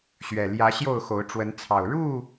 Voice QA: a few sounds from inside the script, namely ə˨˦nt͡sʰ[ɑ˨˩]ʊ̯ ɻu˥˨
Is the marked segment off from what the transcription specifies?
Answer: no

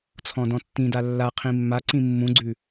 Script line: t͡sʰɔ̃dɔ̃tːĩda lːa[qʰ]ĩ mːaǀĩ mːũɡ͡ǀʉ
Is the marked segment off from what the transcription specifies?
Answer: no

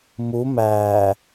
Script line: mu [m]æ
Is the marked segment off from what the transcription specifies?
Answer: no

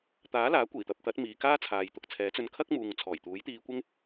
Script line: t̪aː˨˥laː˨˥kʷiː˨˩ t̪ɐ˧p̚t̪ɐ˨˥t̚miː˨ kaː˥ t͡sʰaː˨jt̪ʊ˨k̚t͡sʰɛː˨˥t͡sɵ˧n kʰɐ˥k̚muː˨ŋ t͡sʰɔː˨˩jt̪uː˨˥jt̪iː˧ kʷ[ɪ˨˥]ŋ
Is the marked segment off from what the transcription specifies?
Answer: yes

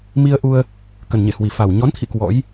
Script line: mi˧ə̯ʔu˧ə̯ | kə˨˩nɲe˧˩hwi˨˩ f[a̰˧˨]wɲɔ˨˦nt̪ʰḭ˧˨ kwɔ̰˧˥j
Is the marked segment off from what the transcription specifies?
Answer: yes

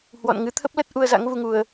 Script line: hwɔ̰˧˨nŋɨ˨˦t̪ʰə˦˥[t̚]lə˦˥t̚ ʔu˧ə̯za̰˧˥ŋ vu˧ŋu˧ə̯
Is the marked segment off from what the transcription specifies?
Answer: yes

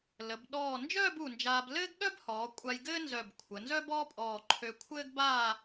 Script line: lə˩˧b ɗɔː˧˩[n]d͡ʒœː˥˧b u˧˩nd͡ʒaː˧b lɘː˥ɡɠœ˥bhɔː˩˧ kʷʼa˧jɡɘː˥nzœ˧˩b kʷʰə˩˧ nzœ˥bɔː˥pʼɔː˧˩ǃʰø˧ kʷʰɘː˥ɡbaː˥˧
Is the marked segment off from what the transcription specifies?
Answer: no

